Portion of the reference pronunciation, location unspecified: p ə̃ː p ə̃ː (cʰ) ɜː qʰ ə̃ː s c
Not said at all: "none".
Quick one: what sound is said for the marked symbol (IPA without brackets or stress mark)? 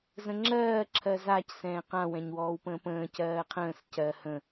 c